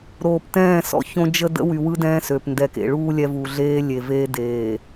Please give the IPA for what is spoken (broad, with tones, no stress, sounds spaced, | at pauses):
ɾ oː˨ p t ɛ̃ː˦˨ s ɔ̰˦ ç õ˦ d͡ʒ ə˦ d ə̰˦ w y˨ w ɯ˦ d ɛ̃ː˦ s ø˨ p n d ɛ˨ k ḛ˨ ɭ uː˦ lʲ ɛ˦ v u˨ ɮ eː˦ lʲ e˨ v eː˦ d eː˨